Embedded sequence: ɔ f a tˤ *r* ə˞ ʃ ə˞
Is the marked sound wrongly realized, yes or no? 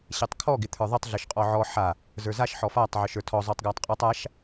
yes